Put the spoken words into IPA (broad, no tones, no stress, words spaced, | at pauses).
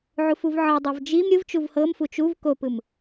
ʕufuvʕɤdˤɤv d͡ʒim ɾʲɯvt͡ʃuv hɤmfu t͡ʃuv kopɯm